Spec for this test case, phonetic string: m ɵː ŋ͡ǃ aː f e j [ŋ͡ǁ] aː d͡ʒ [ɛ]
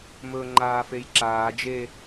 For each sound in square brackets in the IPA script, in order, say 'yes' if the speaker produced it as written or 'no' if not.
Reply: no, no

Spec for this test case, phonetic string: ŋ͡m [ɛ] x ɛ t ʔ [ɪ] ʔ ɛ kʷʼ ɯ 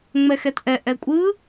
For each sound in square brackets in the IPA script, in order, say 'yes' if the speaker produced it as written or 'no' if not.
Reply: yes, no

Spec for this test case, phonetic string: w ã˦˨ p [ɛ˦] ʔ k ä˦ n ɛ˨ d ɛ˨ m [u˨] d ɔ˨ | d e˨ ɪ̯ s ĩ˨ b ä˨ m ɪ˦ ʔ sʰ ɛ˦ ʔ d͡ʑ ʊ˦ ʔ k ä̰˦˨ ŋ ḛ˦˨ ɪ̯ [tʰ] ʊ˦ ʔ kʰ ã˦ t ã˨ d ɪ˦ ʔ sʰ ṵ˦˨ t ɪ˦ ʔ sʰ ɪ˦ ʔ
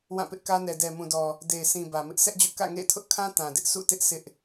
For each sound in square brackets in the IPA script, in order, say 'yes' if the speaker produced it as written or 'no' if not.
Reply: no, no, yes

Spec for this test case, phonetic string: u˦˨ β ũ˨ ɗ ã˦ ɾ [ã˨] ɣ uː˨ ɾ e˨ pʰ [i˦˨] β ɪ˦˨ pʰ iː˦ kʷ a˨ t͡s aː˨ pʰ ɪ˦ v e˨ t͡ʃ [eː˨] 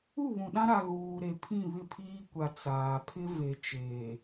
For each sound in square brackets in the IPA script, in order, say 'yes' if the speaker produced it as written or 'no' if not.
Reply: no, no, yes

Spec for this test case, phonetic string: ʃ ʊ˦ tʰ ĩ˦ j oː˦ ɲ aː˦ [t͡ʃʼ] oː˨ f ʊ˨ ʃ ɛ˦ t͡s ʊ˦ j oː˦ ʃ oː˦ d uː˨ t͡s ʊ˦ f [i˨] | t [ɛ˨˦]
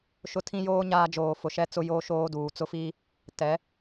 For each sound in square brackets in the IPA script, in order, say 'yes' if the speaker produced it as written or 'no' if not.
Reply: no, no, yes

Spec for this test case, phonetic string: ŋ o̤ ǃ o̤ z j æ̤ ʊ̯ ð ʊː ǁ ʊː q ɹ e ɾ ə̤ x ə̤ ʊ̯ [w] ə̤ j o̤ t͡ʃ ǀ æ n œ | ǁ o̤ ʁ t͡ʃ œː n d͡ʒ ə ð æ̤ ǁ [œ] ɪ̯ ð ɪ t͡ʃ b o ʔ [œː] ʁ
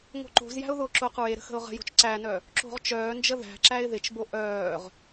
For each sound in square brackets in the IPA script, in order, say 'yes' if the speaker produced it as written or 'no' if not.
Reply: no, no, yes

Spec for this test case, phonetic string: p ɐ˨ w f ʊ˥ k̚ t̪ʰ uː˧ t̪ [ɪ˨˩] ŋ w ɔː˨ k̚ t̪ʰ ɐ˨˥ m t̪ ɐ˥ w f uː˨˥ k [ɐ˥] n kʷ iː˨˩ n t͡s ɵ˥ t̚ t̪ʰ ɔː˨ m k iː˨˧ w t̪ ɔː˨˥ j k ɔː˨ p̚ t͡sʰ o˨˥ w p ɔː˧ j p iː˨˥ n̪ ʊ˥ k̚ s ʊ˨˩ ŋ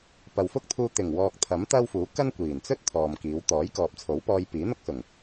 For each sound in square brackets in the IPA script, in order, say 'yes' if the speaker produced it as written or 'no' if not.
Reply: yes, yes

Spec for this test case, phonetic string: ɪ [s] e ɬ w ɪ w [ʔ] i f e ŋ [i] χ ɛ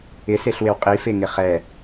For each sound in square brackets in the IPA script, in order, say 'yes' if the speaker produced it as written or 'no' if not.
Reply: yes, no, no

